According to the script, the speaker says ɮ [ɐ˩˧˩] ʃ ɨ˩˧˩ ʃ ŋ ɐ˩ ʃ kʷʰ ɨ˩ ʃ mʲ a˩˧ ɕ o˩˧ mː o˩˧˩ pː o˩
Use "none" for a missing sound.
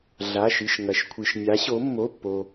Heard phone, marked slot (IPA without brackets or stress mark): a˩˧˩